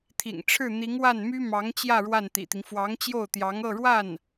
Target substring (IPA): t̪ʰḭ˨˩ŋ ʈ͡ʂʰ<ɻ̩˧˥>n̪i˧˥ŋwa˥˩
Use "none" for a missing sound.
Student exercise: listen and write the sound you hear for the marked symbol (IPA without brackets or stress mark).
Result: ɻ̩˥˩